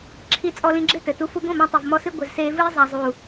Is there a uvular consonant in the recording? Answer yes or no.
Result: no